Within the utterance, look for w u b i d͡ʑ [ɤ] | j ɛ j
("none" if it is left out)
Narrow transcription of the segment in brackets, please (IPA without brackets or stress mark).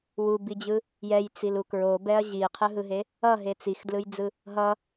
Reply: ɯ